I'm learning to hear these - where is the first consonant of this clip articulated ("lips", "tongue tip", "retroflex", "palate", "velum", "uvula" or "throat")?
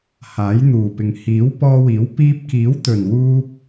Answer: throat